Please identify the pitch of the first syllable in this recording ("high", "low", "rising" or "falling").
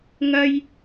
high